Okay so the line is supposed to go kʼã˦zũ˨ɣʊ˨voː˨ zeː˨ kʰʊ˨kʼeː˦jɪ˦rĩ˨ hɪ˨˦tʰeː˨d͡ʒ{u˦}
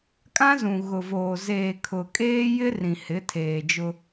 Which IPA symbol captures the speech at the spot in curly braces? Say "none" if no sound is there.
ʊ˦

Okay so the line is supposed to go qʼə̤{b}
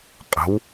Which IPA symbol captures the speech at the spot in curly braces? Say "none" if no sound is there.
w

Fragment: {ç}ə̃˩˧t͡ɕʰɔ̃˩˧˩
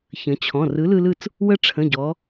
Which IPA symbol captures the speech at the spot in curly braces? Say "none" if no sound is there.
ç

